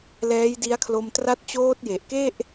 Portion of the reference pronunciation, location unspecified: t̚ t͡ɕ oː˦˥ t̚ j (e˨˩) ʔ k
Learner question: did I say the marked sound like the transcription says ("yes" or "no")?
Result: yes